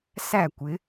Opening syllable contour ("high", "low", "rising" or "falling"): falling